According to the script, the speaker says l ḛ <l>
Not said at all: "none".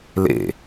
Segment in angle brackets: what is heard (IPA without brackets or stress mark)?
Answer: none